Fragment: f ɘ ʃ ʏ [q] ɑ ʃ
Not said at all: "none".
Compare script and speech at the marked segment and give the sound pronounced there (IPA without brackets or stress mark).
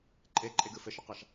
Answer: q